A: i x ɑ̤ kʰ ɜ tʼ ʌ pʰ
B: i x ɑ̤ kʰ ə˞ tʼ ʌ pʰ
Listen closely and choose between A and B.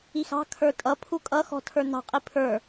B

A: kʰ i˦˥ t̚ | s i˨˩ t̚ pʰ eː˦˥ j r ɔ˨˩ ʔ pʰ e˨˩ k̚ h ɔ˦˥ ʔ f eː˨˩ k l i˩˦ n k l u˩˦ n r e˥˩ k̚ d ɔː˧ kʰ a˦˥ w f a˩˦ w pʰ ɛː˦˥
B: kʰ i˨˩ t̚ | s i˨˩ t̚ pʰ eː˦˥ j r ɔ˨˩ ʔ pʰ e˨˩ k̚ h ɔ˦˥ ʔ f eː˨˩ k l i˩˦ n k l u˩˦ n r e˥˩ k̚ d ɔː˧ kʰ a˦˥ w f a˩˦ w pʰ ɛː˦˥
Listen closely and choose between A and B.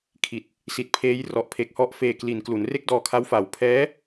B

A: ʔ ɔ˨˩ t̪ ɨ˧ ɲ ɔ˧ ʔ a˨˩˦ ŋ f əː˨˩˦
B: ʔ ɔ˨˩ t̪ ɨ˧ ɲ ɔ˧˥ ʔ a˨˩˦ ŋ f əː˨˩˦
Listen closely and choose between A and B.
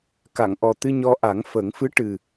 A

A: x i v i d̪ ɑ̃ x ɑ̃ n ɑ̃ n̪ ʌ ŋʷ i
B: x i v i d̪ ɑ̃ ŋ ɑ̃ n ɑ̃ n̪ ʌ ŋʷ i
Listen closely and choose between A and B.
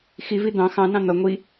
A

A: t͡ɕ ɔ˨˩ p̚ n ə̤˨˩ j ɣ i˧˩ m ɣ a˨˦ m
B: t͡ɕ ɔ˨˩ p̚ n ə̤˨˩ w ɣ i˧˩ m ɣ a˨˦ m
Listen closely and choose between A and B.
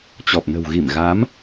B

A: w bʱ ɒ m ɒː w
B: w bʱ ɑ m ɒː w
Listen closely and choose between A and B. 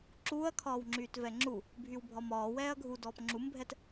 A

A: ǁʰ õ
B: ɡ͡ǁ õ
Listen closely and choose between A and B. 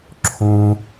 A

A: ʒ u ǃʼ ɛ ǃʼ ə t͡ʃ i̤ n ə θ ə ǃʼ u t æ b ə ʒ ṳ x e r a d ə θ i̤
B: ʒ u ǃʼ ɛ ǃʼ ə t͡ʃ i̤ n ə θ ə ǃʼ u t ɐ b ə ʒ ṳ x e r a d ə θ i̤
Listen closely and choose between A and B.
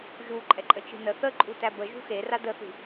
A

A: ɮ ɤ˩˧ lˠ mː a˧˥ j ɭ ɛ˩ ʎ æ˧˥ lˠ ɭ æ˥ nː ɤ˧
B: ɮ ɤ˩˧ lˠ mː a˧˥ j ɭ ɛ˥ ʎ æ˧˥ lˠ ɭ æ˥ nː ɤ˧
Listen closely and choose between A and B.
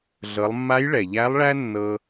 A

